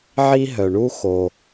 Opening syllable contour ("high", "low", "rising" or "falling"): high